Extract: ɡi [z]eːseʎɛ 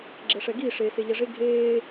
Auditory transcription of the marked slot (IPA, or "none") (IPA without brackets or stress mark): ʂ